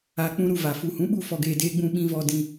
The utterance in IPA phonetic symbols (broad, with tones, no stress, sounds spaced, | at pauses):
a˨ k͡p ũ˧ ɾ u˧ v a˨ f u˨ h ũ˨˦ ɓ u˦˨ f ɔ˧ ɡ eː˧ d eː˧ ɡ͡b ũ˧ ɓ ĩ˧ v ɔ˧ d ĩ˧